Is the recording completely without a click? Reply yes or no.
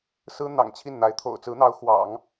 yes